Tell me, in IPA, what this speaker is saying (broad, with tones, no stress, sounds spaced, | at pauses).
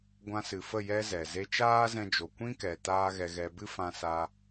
ɡʷ ã˧ s ɨ˨ f ə˦˨ j ɛ˧ z ɛ˨ z e˧ t͡ʃ aː˦ z ɛ̃˧ d͡ʒ o˨ kʷ ĩ˦ k ɛ˨ t aː˦ ɣ ɛ˧ ɣ ɛ˧ b ɨ˦ f ã˧ s a˧